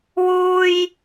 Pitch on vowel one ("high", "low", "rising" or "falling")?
high